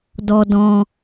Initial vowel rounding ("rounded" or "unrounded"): rounded